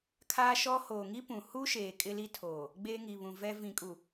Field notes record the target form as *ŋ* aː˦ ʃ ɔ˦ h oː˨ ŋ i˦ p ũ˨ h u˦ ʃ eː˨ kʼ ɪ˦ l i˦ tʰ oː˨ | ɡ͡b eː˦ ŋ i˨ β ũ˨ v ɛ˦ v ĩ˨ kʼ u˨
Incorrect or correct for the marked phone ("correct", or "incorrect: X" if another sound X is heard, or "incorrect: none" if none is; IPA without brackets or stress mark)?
incorrect: kʰ